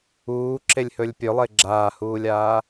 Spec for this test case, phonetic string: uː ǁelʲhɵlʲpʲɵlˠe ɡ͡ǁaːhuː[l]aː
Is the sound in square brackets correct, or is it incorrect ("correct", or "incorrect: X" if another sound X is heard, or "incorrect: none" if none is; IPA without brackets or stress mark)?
incorrect: lʲ